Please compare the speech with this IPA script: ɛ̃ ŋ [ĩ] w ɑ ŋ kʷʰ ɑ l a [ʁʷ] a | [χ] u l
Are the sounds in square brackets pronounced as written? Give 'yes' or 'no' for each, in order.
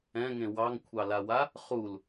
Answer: no, no, yes

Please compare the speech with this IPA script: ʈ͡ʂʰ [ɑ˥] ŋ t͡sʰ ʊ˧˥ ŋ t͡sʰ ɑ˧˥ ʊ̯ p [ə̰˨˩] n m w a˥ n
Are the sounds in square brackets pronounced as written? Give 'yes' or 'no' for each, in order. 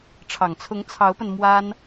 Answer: no, no

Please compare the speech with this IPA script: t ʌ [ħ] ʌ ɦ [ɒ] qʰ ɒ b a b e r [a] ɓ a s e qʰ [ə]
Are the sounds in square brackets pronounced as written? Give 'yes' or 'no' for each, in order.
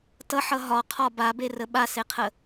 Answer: yes, yes, no, yes

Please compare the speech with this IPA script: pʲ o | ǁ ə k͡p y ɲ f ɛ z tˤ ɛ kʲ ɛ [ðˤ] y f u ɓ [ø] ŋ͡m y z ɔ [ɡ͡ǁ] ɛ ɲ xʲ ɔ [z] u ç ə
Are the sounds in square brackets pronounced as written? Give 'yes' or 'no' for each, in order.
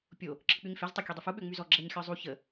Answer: no, yes, yes, no

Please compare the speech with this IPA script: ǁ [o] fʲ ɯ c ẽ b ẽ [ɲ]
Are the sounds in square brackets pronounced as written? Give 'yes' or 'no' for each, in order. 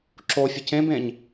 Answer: yes, yes

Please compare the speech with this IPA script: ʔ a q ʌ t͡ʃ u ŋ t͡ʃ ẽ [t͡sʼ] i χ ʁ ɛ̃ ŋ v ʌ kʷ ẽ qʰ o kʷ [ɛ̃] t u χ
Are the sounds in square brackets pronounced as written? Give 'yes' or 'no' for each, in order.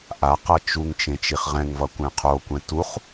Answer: no, yes

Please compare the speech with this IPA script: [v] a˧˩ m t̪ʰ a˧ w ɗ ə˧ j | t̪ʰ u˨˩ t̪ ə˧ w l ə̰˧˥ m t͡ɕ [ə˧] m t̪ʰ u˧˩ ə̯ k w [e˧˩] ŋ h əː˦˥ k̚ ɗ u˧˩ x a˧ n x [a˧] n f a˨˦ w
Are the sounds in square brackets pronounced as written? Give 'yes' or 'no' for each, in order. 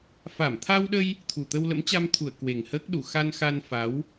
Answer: no, no, no, yes

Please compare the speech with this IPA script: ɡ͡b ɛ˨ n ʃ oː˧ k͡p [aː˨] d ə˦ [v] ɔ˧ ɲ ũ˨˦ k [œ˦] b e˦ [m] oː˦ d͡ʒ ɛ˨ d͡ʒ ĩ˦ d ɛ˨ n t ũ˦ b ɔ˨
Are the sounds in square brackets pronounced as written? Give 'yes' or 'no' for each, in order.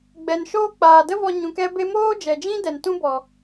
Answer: yes, yes, no, yes

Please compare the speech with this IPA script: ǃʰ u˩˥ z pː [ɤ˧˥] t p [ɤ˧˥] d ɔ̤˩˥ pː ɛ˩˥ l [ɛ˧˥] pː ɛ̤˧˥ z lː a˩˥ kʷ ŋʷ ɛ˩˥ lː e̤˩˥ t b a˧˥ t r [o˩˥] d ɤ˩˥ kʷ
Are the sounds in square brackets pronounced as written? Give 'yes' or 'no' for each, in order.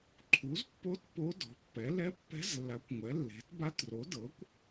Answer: no, no, yes, yes

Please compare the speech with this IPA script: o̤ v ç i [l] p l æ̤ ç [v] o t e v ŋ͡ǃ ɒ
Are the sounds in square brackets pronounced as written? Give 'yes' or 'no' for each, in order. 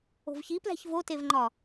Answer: no, yes

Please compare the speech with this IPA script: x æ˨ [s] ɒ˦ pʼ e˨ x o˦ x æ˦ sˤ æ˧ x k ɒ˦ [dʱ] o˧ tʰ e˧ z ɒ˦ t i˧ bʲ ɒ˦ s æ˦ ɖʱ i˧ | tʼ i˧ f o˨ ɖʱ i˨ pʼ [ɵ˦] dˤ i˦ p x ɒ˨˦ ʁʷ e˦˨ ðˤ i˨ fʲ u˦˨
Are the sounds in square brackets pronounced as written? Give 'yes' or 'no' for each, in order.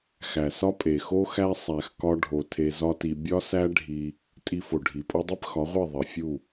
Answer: yes, no, no

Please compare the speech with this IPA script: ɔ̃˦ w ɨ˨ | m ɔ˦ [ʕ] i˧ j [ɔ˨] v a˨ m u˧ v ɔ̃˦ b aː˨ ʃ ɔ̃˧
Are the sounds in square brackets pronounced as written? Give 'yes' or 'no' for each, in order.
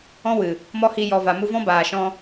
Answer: no, yes

